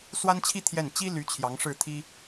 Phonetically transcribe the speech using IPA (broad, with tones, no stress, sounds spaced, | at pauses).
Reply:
s w a˥ n t͡ɕʰ i˥ t̪ʰ j ɛ˥˩ n t͡ɕ i˥ l y˧˥ t͡ɕʰ j ɑ˧˥ ŋ ʂ ɻ̩˥˩ t̪ʰ i˥